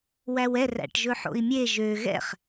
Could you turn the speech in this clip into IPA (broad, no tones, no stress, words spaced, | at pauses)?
wæwɛr æ̰ʈʒɵħo̰i̯mʲe ʒø ɣɛ̰χ